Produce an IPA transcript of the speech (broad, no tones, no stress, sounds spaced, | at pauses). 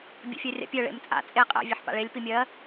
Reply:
bʲ ḛ fʲ ɜ rʲ a̰ pʲ œ ɭ ḛ m t͡sʼ a̰ t͡sʼ e qʼ ɛ̰ vʲ ɑ ħ p a̰ ɭ e lʲ p i mʲ ɜ